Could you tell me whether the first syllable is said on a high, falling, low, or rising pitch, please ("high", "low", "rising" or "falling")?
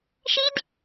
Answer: high